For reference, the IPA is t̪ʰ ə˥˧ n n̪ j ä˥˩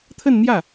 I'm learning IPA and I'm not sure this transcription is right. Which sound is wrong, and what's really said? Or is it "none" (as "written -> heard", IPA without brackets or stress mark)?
none